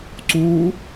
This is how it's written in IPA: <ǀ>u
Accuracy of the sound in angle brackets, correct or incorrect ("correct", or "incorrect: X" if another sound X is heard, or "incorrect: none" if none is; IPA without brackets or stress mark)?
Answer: correct